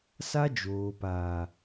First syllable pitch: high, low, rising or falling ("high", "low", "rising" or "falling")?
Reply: high